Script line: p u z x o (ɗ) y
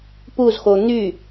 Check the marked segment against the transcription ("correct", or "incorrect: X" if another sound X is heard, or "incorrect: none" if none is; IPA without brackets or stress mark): incorrect: n̪